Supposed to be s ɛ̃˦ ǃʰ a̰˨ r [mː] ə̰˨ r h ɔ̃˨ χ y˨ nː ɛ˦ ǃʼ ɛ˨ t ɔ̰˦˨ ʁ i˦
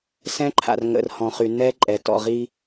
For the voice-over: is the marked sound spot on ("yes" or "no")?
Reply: no